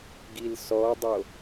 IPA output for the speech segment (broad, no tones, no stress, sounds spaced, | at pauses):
ɡ i l s ɔ dˤ o